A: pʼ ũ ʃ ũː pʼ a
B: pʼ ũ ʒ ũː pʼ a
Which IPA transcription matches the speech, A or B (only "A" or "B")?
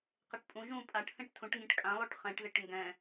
B